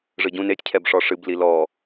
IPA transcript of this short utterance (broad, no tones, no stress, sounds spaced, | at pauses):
ʐ ɨ ɟ ũ n e tʲ cʰ ɛ b ʂ ɔ ʂ ɨ b l i l ɔ